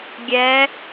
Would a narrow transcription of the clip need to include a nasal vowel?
no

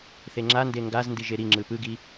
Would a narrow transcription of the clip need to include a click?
yes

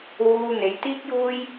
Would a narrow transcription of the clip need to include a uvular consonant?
no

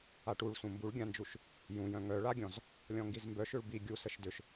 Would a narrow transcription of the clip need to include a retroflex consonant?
yes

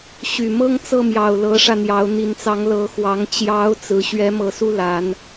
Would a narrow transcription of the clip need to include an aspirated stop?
no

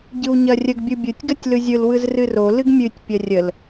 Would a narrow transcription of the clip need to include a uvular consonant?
no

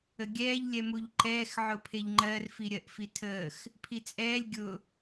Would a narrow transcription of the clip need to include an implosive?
no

